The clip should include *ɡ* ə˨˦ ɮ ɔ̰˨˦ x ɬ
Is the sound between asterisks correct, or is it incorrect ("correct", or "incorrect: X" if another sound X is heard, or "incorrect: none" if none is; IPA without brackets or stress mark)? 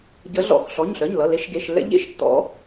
incorrect: ɟ